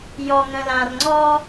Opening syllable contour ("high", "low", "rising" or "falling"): low